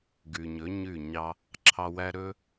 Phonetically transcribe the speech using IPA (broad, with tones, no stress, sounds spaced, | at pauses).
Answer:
ɡ ʉ˨ ɲ ɵ˨˦ ɲ ʉ˦˨ ɲ ɑ˦ | ǁʰ ɑ˧ w æ˦ ɾ ɵ˦